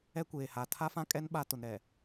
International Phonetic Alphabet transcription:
ɛ˦kʷeː˨ha˨ tʰa˦fã˦kʼɛ˦n ɓa˦tʊ˨nɾɛ˨

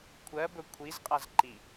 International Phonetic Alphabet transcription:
kʷʰɜbɵ kʷʰizqʼaz ǃi

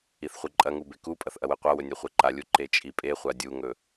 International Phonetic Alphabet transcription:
iθχʷɨǃʼɐŋu bekupʼɐθ ʔɐwɨqʷawɵ nʲɵχʷeǃalʲu ǃet͡ʃʼipʼeχʷa dʲuŋɵ

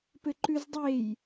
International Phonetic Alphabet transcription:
pɘǃʉzdˤej

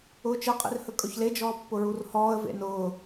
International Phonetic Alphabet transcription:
ʊːt͡ʃəqʼḭr hɵkʼɵçled͡ʒɔː pːʊɹurhɔːə̯ vḛnʊː

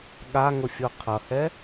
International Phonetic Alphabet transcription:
ɠaŋʊfʲo qʰʌhɛ

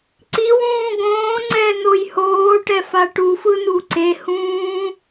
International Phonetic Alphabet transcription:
ǀiwũː ɡõːŋ͡ǀɛ nojhoːʈɛ faʈufɯ nuǀehũː

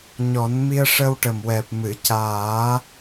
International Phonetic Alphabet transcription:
ɲɔ˨˩˦nmi˧ə̯ʂə˧w ʈə˨˩mwɛ˨˩p̚ mɨ˨˩˨caː˨˩˦

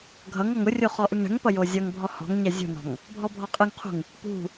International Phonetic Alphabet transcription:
ɡʱʌŋɔŋ ʊrʲo χɔʔɯŋɳɛ̤ŋpʌ jozʲʌŋbʱɔ hɔ̤ŋɲɛ zʲṳnɔ̤ŋ | bʱɔbʱɔqʼɯŋqʰṳŋ | pṳ

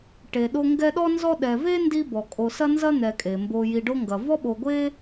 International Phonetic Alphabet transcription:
ʈe˨ɗo˦ ŋɡɛ˦ɗɔ˥ nzɔ˦ɗɛ˨ ve˥ ndi˦bɔ˩kʼo˨ sɐ˥nzɐ˥n̪ɛ˨kʼe˩ mbo˨ji˨ɖo˦ŋɡɐ˩ vɔ˥ɓo˨ɡʷe˥

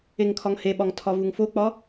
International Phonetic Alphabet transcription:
eŋkʰɒŋheɓɒŋ tʰɒvuŋfok͡pɒ

